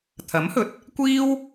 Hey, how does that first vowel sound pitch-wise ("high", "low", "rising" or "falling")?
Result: rising